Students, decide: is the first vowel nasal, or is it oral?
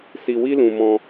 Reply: oral